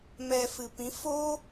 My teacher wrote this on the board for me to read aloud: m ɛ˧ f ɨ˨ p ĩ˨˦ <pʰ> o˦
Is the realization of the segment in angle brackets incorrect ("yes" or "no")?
yes